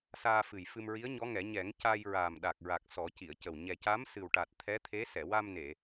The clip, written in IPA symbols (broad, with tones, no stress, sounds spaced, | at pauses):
s aː˧ f ɨ˨˩ j f ɨ˧ m ɹ i˧˥ ə̯ ɲ ɔ˧˥ ŋ ɛ˨˩˦ ɲ ɛ˨˩˦ ŋ c a˧ j ɹ aː˨˩ m ɗ a˨˩ k̚ ɹ a˨˩ k̚ s ɔ˨˩˦ c i˨˩˨ ə̯ c ə˨˩ w ɲ ɛ˨˩ c a˧˥ m s ɨ˨˩ w ʈ a˨˩ t̚ t̪ʰ ɛ˧˥ t̪ʰ e˧˥ s ɛ˨˩˨ w a˧ m n e˨˩˨